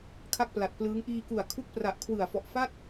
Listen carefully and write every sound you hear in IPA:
kʰa˥˩k̚pla˨˩t̚plɯː˦˥ŋ ʔiː˧ku˨˩a̯ kʰu˦˥k̚pra˨˩ʔ kʰwɯ˨˩a̯fɔ˨˩ʔfa˥˩t̚

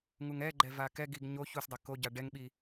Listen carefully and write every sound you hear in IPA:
ŋuŋɛɡ͡ǃɛ vakɛɡiɡ ɲo çusdˤe koɟa ɖɛŋɓi

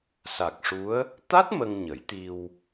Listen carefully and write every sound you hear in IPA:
sa˨˩k̚ʂu˧˥ə̯ | t̪a˦˥t̚ mə˧ŋɲə˨˩˦jt̪i˧w

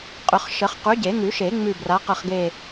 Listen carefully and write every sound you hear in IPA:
qʼʏ˨˩˦χ ʃə˨˩˦χ qʉ˨˥ɟe˨˩˦ŋʉ˨˩˦ʃe˨˩˦ ŋ͡mʉ˦˨ bra˨˥qə˦˨χɡe˦˨

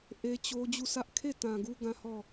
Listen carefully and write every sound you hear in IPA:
ʔe˦t͡ɕo˦ d͡ʑu˦˨sʰä˦ʔ kʰe˦˨tã˨ ɡu˦ɡã˦hɔ˦˨

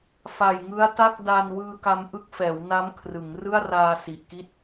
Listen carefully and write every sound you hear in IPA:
fa˨˩jŋɯ˦˥a̯ta˥˩k̚ da˧nwɯː˧ka˧m ʔɯ˦˥k̚fɛː˩˦wna˦˥m kʰrɯ˩˦ŋ rɯ˥˩a̯raː˧si˨˩ʔki˥˩t̚

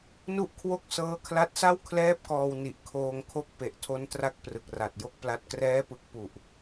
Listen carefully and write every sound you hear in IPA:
nu˥˩ʔkʰwo˥˩k̚ sɤː˦˥kʰla˦˥t̚sa˥˩w kʰlɛː˥˩p̚kɔː˧w ni˨˩ʔkʰoː˧ŋkʰo˦˥k̚ pe˨˩ʔtʰo˦˥n tra˦˥k̚prɯ˨˩k̚ra˨˩t̚ jo˥˩k̚pla˦˥t̚ krɛː˦˥pɯ˨˩k̚pu˨˩ʔ

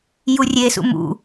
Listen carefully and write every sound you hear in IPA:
jurʲesṵ mṵ

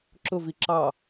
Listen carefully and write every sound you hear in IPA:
ǁʊvi ǁɑ

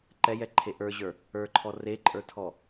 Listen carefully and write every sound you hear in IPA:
ǃɛjɛǃʰe ʔə˞ʑə˞ | ə˞ǃʰɔ reǃʼə˞tʰɔ

